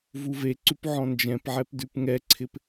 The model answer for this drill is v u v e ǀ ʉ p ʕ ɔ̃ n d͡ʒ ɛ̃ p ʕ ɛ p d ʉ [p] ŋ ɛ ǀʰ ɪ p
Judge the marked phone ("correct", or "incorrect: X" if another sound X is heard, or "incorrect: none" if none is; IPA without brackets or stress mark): correct